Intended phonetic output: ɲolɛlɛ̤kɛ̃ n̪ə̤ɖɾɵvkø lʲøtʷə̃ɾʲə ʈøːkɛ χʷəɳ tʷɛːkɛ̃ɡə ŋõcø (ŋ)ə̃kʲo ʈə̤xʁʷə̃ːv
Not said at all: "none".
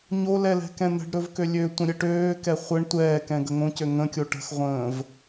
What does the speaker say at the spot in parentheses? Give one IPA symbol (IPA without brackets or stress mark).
ŋ